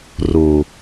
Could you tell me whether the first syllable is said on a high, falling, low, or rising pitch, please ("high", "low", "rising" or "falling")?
low